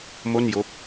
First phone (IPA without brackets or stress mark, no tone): m